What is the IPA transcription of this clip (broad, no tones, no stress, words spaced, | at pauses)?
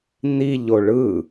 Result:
niʎo ɭɯ